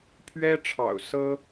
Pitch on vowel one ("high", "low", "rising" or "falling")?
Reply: high